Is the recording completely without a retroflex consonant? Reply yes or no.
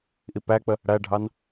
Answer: no